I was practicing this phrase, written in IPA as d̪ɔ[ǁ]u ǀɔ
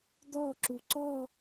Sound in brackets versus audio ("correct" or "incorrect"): correct